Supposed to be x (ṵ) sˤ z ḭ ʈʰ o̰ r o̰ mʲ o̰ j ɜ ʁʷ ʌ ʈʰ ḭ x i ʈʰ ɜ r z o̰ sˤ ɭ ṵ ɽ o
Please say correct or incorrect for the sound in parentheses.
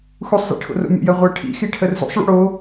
incorrect